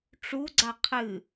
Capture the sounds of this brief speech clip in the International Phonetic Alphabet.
ʈ͡ʂuɡ͡ǀa qʰɨ

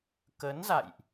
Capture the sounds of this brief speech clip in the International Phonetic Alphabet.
kə˨˦nza̰˧˨jʔ

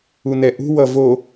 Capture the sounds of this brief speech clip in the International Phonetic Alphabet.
unɛʔṳ wʌvo

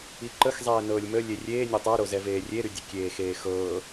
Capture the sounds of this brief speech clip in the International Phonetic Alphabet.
iǃəxzˤɛː nɤːlʲmə lʲerʲeː nʲotˤoɾo zɛveːrʲeɾy dʲəkʲeːxeːxɤː

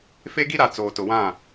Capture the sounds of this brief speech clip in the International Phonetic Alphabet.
fe˦ɡi˦ɾa˨ t͡soː˨tʊ˨wã˦˨

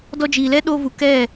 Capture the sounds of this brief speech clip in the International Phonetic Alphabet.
dɔ˧d͡ʒiː˨lɛ˦ ɗo˧vu˨ kɛ˦˨

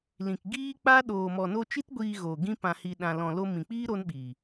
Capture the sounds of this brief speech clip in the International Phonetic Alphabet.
lĩ˨kɡiː˦k͡pa˦ ɗoː˨mɔ˨no˧t͡ʃi˦t ɡʷiː˧ɣoː˨ ɡĩ˦pã˧hi˧ ɗã˧ lɔ̃˧lo˦ mĩ˨k͡piː˦ ɾo˦nɓiː˨

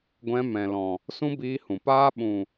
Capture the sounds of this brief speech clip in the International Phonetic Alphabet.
ɡʷɛ̃˧ mɛ̃˨lɔ̃˨ | sũ˦biː˧hũ˨paː˦ ɓũ˨

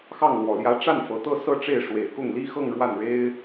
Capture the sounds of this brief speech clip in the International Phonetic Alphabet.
xɑ˥˩ŋlwɔ˨˩ljä˧˥ ʈ͡ʂa˥˩nfɤ˨˩t̪ɤ˥˧ sɤ˥˧ʈ͡ʂe˥˩ɪ̯ ʂwe˨˩ɪ̯kʊ˥˩ŋli˥xɤ˥˧ŋ ɻwa˥˩nɻe˥ɪ̯

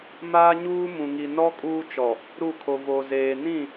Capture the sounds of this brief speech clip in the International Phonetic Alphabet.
maː˦ɲuː˦mũ˨ŋi˨ nɔ˦ kʼuː˦t͡ʃɔ˨ | ɾu˦˨kʰo˨ vo˨zeː˨ nĩ˦˨

